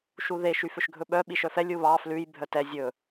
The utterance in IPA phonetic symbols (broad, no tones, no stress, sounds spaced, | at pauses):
ʃ u ð e ʃ y f ø ʃ ɡʱ ɵ ɓ œ ɓ i ʃ œ f ɛ lʲ u β ɑ f l ʉ j bʱ œ t ɛ zʲ ɵ